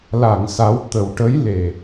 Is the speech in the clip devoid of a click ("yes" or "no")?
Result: yes